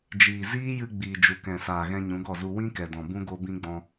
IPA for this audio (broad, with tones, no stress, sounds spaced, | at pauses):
d͡ʒ iː˨ z iː˦ j ɨ˧ ɡ͡b iː˨ d͡ʒ u˨ k ɛ̃˨ s aː˨ ɣ ɛ̃˧ ɲ ũ˨˦ ɡ ɔ˦˨ z u˧ w ĩ˦ k ɛ˨ d ɔ̃˨ b ũ˦ ɡ o˦ b ĩ˦ ɡ͡b ɔ̃˧